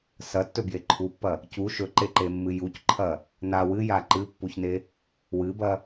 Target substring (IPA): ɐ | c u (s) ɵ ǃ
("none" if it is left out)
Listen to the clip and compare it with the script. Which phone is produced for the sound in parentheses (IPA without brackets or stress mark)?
ʃ